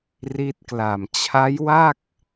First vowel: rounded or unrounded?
unrounded